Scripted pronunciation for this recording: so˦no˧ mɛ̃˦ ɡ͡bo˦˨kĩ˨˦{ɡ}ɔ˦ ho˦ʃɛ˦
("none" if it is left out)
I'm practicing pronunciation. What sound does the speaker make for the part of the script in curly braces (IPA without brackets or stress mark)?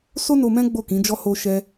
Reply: d͡ʒ